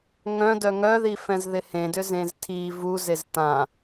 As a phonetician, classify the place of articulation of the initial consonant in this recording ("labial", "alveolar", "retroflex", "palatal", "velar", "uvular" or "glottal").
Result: velar